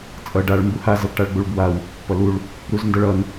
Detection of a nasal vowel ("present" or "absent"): absent